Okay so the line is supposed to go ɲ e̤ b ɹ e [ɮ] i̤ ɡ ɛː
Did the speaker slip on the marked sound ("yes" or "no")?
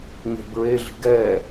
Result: no